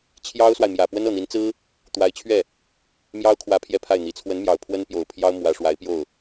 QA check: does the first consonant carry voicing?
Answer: no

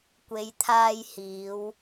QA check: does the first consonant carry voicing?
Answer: no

